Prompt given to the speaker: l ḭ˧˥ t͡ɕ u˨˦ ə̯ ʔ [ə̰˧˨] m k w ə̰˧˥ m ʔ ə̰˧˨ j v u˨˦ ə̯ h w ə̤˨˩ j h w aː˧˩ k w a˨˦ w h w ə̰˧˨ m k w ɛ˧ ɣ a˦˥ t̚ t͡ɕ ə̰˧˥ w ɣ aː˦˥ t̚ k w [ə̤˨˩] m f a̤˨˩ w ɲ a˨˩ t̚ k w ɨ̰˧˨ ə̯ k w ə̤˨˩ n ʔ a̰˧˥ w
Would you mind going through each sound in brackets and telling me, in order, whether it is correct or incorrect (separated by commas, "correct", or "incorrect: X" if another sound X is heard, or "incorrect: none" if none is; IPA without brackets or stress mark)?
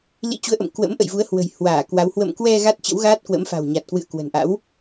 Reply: correct, incorrect: ə̰˧˥